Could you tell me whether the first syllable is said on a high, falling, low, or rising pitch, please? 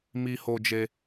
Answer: high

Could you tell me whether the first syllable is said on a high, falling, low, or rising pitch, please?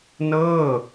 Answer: falling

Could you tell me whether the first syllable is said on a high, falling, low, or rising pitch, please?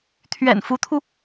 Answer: low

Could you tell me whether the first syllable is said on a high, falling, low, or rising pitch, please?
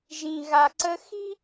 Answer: low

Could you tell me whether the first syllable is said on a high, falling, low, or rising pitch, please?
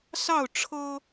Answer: falling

